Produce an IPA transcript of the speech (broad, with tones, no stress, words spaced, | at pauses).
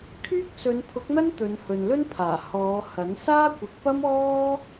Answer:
kʰyː˥k̚sɵ˨˧npʰʊ˨˥k̚n̪ɐ˥n t̪ɵ˨˧nhɵ˨nlɵ˥npʰaː˨˩ hɔː˨˧hɐ˨˥n saː˥kʷɪ˨˥k̚pɐ˥mɔː˥